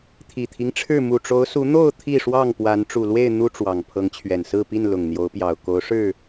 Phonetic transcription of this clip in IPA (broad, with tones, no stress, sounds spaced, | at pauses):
t̪ʰ i˨˩ t̪ʰ i˦ ŋ ʈ͡ʂʰ ɻ̩˥˨ m u˨˩ ʈ͡ʂ o˨˦ ʊ̯ s u˨˦ n̪ o˥˨ ʊ̯ t̪ʰ i˥˨ ʂ w ɑ˥˨ ŋ p w a˨˦ n ʈ͡ʂ u˨˩ l w e˥˨ ɪ̯ n̪ u˦ ʈ͡ʂ w ɑ˨˩ ŋ pʰ ɤ˨˦ ŋ t͡ɕʰ ɥ ɛ˨˩ n s ɹ̩˥˨ p i˥˨ n l ʊ˨˩ ŋ n̪ j o˨˦ ʊ̯ p j ɑ˨˩ ʊ̯ k o˨˦ ʊ̯ ʂ ɻ̩˥˨